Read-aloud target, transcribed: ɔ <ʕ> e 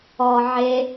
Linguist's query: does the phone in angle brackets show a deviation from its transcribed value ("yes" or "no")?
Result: no